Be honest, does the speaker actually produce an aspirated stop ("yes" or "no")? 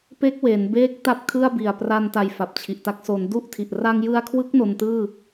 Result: yes